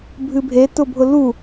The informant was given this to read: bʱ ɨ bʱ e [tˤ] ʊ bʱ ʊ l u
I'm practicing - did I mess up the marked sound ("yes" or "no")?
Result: yes